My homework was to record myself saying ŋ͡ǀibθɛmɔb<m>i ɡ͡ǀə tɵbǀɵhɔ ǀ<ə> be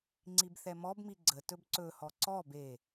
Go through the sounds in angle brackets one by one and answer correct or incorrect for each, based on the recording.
correct, incorrect: ɔ

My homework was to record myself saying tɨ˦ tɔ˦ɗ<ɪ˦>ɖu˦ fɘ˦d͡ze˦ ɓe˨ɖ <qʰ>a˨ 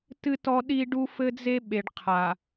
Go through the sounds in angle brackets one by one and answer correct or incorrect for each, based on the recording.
incorrect: i˦, correct

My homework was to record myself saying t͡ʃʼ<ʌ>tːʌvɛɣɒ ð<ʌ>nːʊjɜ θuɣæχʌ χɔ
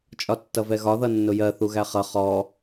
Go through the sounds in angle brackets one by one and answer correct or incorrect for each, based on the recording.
incorrect: ɒ, correct

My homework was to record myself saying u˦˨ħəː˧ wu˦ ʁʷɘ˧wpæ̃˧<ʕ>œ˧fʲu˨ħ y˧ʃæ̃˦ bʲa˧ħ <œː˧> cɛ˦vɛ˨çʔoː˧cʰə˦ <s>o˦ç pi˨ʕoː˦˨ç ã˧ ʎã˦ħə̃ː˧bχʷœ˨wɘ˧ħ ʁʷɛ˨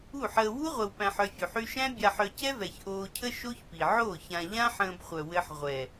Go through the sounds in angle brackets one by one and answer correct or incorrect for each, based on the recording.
incorrect: ħ, incorrect: œ˧, incorrect: ʃ

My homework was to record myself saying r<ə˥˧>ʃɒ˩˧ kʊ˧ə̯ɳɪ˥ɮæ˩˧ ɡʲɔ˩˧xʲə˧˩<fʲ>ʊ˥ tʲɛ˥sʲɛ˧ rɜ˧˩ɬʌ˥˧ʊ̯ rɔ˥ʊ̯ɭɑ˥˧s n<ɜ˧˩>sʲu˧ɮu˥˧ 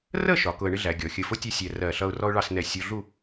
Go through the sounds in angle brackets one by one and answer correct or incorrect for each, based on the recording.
correct, incorrect: f, incorrect: ɛ˧˩

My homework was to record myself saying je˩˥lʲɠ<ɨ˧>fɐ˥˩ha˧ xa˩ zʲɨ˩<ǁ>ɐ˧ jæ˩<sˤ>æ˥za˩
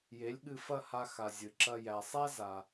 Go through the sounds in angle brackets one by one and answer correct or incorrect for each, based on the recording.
correct, correct, correct

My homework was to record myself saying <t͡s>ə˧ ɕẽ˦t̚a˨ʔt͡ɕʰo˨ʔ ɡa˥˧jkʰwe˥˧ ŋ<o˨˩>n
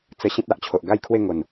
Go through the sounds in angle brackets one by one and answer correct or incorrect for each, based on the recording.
correct, correct

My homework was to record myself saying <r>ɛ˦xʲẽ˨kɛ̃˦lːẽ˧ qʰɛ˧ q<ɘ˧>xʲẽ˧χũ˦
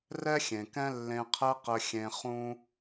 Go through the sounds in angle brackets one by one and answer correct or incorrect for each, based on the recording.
correct, correct

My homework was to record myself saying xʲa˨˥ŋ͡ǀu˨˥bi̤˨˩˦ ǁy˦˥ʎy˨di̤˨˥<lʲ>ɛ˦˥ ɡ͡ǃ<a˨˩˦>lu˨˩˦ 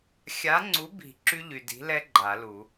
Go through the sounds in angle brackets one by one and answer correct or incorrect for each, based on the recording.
incorrect: l, correct

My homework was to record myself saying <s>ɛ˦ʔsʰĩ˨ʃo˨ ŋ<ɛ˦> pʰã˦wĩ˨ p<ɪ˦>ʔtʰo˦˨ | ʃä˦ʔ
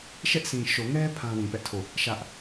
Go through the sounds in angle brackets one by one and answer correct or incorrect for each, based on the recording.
incorrect: ʃ, correct, incorrect: ɛ˦

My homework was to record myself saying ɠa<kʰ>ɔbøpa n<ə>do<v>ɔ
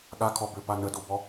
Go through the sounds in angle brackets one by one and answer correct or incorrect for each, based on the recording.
correct, correct, incorrect: b

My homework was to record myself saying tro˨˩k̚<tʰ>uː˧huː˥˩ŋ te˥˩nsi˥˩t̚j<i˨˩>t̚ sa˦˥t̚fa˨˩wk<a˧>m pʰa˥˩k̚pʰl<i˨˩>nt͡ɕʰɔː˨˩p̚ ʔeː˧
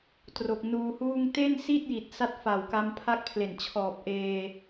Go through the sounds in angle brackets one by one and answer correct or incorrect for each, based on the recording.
incorrect: n, correct, correct, incorrect: e˨˩

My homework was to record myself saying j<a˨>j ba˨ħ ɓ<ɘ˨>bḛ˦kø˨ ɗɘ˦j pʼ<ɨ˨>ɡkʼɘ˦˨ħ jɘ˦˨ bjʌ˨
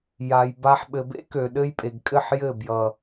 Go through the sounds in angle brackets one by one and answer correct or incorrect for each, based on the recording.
correct, correct, incorrect: e˨

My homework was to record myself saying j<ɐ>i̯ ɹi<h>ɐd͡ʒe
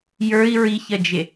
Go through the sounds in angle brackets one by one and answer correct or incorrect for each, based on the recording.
incorrect: ə˞, incorrect: ç

